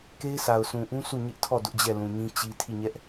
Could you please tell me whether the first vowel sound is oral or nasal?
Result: oral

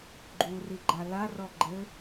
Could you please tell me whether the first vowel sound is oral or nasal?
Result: oral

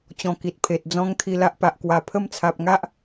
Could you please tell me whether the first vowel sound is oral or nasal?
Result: nasal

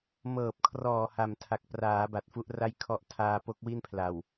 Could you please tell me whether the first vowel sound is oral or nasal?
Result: oral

